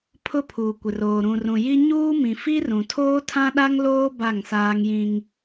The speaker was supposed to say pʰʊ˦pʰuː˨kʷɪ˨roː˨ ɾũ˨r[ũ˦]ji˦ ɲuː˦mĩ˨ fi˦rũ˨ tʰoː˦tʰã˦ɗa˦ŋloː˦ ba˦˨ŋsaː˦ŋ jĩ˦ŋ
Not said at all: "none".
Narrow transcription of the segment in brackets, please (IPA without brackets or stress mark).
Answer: ũ˨